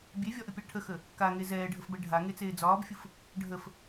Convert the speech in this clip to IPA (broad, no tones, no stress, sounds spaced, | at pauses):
bʲ e vʲ ɒ ʔ ə pʲ a ʈʰ ə x ə | k a ŋ e z ɛː ɖʱ ə f b ɛ ɖʱ a ŋ e t͡s eː d͡z ɒː b fʲ ɯ f | ɖʱ ə f